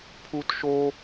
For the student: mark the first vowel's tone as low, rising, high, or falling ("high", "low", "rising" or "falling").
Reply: high